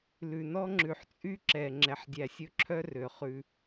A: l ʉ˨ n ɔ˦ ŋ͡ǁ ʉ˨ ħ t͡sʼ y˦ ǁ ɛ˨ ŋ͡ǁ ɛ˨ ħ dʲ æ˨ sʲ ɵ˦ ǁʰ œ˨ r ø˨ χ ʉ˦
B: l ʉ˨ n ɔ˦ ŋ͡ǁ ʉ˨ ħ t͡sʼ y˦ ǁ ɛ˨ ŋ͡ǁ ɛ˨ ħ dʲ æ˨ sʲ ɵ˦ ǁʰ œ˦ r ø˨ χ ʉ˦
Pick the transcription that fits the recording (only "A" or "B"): B